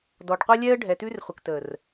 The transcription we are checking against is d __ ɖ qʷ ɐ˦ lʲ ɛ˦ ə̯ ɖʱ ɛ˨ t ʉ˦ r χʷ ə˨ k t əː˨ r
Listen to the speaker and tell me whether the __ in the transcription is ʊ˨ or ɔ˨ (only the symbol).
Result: ɔ˨